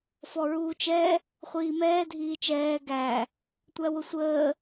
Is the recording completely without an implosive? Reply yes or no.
yes